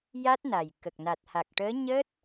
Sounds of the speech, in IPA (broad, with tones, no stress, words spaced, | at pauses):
ja˦˥t̚na˨˩jkə˨˩k̚ na˨˩t̚ha˨˩k̚ʈəː˧˥ ɲəː˦˥t̚